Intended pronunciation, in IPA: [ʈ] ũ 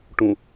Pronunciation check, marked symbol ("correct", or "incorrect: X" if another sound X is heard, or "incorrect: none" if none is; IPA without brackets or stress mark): correct